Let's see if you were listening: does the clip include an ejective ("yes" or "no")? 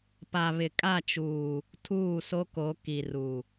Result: yes